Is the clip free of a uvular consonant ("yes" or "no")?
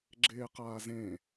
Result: no